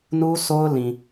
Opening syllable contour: high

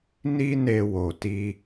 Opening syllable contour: high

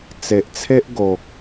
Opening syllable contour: low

